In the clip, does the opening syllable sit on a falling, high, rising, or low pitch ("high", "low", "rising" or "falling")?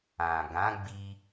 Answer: low